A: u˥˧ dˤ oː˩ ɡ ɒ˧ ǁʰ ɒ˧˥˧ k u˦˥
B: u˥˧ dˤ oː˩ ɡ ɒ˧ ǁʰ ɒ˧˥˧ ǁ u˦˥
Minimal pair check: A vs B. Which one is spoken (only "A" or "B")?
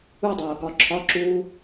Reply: B